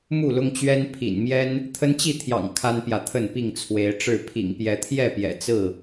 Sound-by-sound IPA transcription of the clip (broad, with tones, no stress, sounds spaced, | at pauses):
m u˥˨ l ʊ˦ ŋ t͡ɕ ɥ ɛ˦ n pʰ ḭ˨˩ n m j ɛ˦ n | t̪ʰ ə˦ n t͡ɕ i˥˨ t̪ʰ j ɑ̰˨˩ ŋ kʰ a˦ n p j ä˨ t̪ʰ ə˥˨ n p i˥˨ ŋ t͡sʰ w e˨˦ ɪ̯ ʈ͡ʂ ɻ̩˥˨ pʰ ḭ˨˩ ŋ p j ɛ˨˦ t̪ʰ j ɛ˥˨ p j ɛ̰˨˩ t͡s ɹ̩˥˨